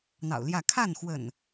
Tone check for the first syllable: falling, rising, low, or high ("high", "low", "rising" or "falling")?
low